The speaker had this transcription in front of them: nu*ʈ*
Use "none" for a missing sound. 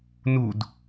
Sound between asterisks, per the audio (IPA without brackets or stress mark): d